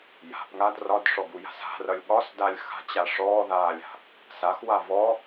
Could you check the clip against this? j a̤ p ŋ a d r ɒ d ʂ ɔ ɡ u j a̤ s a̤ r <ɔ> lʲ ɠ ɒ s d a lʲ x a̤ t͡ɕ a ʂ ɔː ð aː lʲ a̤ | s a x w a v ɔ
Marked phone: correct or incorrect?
incorrect